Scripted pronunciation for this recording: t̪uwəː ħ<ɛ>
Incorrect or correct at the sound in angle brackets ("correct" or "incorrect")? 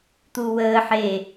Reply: incorrect